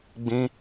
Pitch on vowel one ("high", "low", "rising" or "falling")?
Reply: high